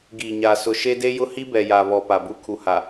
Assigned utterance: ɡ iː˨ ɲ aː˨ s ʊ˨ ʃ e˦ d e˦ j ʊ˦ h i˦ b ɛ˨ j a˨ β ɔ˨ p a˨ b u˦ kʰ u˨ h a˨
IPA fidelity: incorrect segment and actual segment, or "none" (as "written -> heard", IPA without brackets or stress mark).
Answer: none